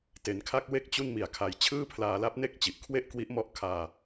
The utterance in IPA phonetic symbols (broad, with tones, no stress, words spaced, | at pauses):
te˩˦nkʰa˥˩k̚ we˦˥k̚ t͡ɕu˥˩nmi˨˩a̯kʰa˧j t͡ɕʰɯː˥˩pʰlaː˧la˦˥p̚ne˥˩k̚ t͡ɕi˨˩ʔkʰwe˥˩ʔ kwi˦˥ʔmɔ˦˥ʔ kʰaː˧